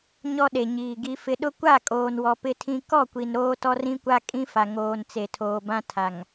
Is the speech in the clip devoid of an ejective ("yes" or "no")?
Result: no